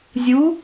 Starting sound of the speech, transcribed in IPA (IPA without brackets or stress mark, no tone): zʲ